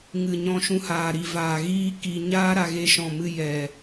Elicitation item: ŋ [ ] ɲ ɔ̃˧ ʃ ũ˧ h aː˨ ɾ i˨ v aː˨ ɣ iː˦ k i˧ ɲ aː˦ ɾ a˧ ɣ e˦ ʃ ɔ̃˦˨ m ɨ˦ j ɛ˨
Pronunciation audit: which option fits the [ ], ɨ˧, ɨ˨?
ɨ˨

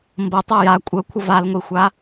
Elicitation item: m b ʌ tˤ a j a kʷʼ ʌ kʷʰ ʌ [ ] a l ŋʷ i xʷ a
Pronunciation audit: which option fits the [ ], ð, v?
v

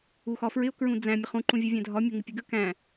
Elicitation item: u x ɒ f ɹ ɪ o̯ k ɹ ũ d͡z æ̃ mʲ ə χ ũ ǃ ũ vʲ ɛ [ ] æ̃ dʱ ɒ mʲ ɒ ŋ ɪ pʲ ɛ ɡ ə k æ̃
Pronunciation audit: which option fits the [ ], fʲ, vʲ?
vʲ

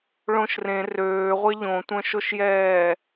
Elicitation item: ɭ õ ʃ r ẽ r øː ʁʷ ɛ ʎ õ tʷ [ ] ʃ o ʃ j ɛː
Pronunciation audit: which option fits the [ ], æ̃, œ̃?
œ̃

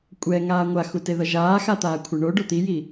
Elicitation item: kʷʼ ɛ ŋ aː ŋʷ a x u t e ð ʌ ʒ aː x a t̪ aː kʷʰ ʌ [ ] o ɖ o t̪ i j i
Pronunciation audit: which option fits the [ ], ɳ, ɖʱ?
ɳ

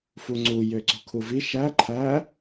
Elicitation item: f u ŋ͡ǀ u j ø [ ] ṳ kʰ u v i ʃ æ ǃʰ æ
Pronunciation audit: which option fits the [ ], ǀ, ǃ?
ǀ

